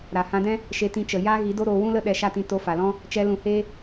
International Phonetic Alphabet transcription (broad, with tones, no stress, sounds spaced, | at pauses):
ɾ a˨ h ã˧ d ɛ̃˦ | ʃ e˧ t ĩ˧ t͡ʃ ə˨ j aː˦ ɣ i˨˦ d o˦ ɾ oː˧ w ũ˦ l ə˦ ɗ ɛ˧ ʃ a˦ t ĩ˧ t o˧ f a˨ l ɔ̃˦ | t͡ʃ ɛ˧ l ũ˧ h eː˦